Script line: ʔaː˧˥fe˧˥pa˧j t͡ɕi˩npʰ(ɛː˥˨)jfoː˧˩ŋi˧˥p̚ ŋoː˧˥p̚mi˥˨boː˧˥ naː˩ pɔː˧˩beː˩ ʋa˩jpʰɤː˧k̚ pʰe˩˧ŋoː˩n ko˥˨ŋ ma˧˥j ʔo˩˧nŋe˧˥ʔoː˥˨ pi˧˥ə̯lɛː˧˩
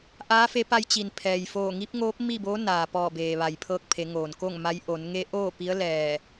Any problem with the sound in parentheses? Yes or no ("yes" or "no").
yes